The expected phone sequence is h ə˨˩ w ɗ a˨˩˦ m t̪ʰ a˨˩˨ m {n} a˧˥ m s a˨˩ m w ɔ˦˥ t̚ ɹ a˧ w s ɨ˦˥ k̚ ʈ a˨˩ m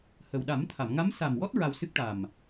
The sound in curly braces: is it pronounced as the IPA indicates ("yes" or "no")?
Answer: no